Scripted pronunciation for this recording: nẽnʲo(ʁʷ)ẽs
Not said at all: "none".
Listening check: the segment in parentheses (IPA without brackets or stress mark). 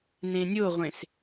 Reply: ʁʷ